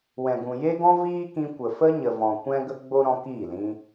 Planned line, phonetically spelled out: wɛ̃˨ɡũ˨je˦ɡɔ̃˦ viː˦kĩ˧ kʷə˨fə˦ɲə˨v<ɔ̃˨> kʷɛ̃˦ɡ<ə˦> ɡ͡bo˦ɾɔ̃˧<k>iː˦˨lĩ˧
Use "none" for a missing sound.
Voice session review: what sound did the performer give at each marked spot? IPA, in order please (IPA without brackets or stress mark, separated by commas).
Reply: ɔ̃˨, ə˦, k